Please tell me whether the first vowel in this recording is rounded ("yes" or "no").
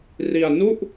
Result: no